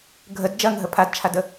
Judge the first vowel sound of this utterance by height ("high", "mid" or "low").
mid